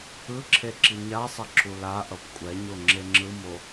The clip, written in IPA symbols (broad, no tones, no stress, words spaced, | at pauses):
ɯǁʰe ǁiɲasˤʌ ǁulaʔʌp kʷʼɛɲo ŋ͡ǁeŋ͡ǁɯmo